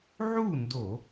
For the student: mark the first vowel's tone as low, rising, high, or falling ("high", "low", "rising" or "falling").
falling